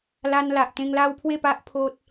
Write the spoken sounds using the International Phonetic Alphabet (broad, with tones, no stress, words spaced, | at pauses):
la˧n la˨ʔt̪ẽ˧ŋla˦wpʰwe˥˧ pa˦ʔpʰo˦t̚